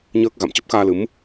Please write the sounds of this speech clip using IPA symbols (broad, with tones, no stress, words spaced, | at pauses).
ɲəː˦˥k̚ɣa̰˧˨m t͡ɕə˦˥p̚xaː˧lɨ˨˦m